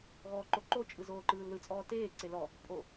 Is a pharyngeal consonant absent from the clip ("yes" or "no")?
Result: yes